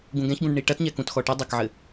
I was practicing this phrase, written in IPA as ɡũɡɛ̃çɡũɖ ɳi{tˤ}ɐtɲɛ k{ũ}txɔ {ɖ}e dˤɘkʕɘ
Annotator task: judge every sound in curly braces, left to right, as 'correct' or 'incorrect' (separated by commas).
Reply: incorrect, correct, incorrect